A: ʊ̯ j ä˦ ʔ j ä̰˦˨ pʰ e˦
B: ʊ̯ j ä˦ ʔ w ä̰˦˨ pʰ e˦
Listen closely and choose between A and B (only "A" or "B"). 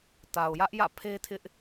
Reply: A